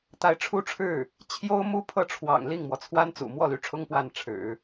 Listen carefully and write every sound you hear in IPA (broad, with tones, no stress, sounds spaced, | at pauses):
t̪ a˧˥ ɪ̯ ʈ͡ʂʰ u˥˧ ʈ͡ʂʰ ɻ̩˥˩ | t͡ɕʰ j o˥ ʊ̯ m u˥ pʰ ɤ˥˩ ʈ͡ʂʰ w ɑ̰˨˩ ŋ l i˥˩ ŋ m w ɔ˩ t͡sʰ w a˥ n t͡s ṵ˨˩ m w ɔ˥˩ l y˧˥ ʈ͡ʂʰ ʊ˥ ŋ p w a˥˩ n ʈ͡ʂʰ ɻ̩˨˩˦